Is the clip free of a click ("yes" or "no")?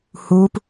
yes